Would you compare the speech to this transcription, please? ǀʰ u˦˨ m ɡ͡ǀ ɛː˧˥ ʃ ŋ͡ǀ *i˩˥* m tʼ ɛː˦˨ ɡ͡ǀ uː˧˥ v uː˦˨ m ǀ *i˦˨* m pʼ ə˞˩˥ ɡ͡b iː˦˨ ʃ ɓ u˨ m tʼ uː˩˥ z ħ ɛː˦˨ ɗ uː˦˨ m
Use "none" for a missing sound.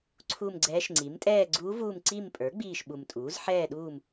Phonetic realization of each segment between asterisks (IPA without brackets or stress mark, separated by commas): i˩˥, i˦˨